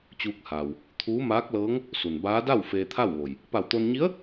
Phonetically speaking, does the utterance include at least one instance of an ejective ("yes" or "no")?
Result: no